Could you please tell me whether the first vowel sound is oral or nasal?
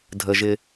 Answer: oral